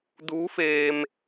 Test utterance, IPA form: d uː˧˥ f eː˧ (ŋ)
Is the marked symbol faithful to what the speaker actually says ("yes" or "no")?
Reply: no